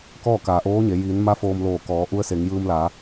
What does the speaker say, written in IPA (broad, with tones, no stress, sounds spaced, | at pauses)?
k ɔː˥˨ k aː˩ ʔ oː˧˥ ɲ e˩˧ j iː˩˧ n m a˧˥ f oː˧ m l oː˧˩ k ɔː˩˧ ʔ u˧˥ ə̯ s e˩˧ ŋ j ɯː˧ m l a˩˧